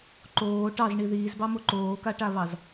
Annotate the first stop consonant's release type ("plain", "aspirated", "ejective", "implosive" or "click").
click